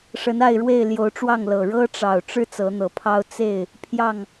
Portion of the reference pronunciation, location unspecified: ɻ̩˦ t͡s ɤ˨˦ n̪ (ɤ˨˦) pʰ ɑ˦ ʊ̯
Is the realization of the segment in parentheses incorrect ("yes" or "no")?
no